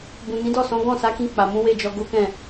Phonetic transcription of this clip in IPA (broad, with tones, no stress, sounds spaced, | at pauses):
b ũ˨ n ĩ˨˦ d ɔ˦˨ s ɔ̃˨˦ ɡ ɔ̃˦˨ s a˨˦ k ĩ˧ k͡p a˨ m ũ˨˦ w e˦˨ d͡ʒ ɔ˧ ɡ o˦ k ɛ̃˦˨